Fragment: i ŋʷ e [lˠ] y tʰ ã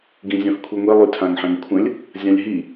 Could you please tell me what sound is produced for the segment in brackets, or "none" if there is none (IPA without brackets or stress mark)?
lˠ